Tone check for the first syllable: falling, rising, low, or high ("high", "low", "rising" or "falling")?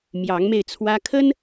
rising